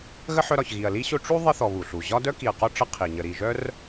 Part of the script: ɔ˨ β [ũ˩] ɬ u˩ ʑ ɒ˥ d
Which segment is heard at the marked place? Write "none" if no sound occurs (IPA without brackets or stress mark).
u˩